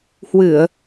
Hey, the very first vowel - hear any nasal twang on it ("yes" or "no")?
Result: no